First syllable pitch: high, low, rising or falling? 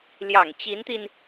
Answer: low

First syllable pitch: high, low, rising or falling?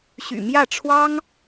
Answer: low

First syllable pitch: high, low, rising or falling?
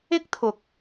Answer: high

